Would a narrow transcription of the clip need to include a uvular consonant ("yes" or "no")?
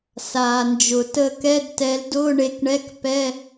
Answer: no